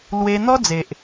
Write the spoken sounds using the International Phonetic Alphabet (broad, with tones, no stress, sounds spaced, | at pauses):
l w e˧ n̪ ɔ˦ d͡z e˨ ʔ